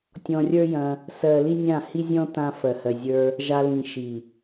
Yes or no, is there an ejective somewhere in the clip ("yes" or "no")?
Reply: no